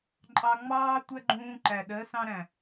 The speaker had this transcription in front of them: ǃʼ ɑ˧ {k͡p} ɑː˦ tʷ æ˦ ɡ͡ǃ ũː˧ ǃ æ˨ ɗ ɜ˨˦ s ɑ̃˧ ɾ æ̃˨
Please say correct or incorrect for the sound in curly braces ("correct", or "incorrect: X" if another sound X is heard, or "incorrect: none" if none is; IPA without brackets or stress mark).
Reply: incorrect: ŋ͡m